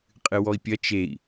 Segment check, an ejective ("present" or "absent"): present